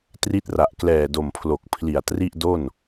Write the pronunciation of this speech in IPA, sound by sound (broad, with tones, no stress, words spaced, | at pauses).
tri˦˥t̚ra˨˩ʔ klɛː˨˩do˨˩mpʰlo˨˩k̚pʰli˨˩a̯ tri˥˩ʔdo˥˩n